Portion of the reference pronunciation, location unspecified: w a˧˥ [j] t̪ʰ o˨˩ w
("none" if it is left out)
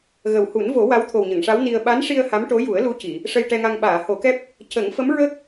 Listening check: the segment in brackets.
w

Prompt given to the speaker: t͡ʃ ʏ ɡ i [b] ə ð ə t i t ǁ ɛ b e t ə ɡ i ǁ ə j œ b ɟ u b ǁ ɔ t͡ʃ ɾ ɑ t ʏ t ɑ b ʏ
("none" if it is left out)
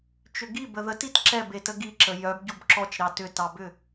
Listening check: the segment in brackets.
b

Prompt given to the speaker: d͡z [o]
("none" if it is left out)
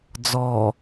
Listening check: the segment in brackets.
ɔ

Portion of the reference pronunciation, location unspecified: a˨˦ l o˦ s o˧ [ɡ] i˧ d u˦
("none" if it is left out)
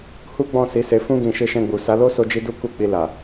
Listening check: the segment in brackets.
d͡ʒ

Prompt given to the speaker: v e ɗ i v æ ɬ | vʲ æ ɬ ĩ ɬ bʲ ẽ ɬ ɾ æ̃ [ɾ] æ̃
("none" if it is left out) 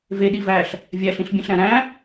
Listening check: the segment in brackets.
ɾ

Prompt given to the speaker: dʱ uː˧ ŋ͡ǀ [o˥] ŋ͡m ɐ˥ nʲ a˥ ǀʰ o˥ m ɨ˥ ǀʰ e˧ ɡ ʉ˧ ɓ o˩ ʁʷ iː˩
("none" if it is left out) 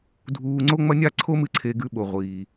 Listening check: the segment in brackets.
o˥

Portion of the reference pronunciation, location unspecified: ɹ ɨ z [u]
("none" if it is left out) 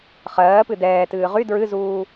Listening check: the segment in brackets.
uː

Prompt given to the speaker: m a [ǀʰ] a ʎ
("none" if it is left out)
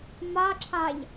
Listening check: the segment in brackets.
ǁʰ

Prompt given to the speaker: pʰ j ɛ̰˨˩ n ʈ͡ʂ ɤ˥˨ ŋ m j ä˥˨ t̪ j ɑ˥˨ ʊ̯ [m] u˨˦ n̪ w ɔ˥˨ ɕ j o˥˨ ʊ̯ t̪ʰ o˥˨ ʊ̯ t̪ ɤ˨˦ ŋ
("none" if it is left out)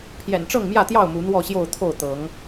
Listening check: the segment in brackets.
m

